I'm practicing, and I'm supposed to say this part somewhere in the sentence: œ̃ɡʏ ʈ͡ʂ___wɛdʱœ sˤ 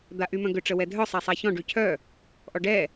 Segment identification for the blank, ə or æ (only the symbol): ə